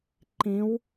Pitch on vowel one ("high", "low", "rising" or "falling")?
rising